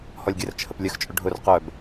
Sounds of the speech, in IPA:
hɔlʲɡʲərt͡ʃʰəp lʲəxt͡ʃʼʊ ɖʱʊr qœb

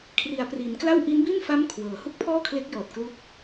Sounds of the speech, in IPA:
kʰri˩˦a̯pri˩˦nkla˥˩w ʔi˦˥nbi˥˩nfa˦˥m kʰwɤː˩˦ hu˥˩k̚pʰɔː˥˩kʰle˦˥k̚jɔː˨˩t̚ klu˦˥k̚

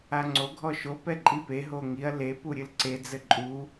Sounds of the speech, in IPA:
aŋ͡ǀo ɡʱɔʃo pɛǃʼipe ɦoŋiɐ̯ le puɾʲɨlǀe d͡zɘǃʼu

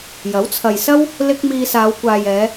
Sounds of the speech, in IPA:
jɐ˨˥wt͡sʰɐ˨jsɐ˥w | lɪ˥k̚ miː˧saː˨˧wkʷaː˨jɛː˨˧

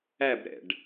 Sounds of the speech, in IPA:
æbɾɛ̰ɖ

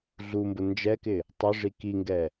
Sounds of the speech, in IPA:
ɮumbʊ nd͡ʒɛkɪ | tˤʊʐi kiŋɡɛ

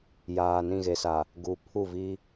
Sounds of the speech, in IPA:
jaː˨nĩ˦˨ɣe˨sa˨ | ɡu˨pʰu˦˨vi˦

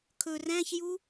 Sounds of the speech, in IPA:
kʰɵ ræ̃çju

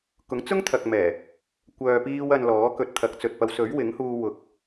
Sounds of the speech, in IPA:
kʊ˨˥ŋt͡sʊ˥ŋt̪ʰɐ˨k̚mɛː˨˩ | kʷœː˨piː˧w ɐ˨n lɔː˨˥kɵ˧t̚t̪ʰɐ˨˥k̚t͡sɵ˨t̚ pɐ˨˧wsɵ˨˥ɥwɪ˨˥ŋhuː˧ wʊ˨˥k̚

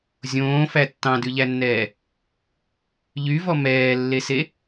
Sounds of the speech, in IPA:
zʲõːfæ tːɑ̃dʉʎænːɛː | ʎyvɔ mɛːlːese

